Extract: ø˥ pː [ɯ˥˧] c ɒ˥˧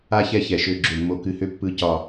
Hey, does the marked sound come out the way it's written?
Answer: yes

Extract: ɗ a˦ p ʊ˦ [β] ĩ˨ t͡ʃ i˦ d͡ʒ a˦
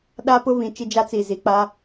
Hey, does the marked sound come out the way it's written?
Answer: yes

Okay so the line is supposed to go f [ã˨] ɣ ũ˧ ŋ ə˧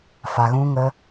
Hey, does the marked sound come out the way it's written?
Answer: no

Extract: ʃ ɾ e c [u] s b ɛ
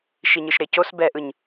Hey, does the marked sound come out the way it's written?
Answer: no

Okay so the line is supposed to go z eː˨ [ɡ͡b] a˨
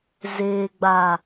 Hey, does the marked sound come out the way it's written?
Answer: yes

